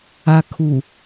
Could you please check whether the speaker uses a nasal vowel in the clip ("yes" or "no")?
no